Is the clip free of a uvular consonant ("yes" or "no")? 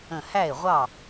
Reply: no